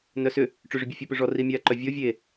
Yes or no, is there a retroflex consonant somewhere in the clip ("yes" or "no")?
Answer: yes